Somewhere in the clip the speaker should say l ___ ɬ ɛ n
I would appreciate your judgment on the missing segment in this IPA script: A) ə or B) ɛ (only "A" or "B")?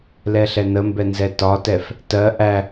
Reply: B